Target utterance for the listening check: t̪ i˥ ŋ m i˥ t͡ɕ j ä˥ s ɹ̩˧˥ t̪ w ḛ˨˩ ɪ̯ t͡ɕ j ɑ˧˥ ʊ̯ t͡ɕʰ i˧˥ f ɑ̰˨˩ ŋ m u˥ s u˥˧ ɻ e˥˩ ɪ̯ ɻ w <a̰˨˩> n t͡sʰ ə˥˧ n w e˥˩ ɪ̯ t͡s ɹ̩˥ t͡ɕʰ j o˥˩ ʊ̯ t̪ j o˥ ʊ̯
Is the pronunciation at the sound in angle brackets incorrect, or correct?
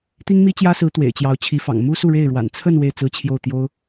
correct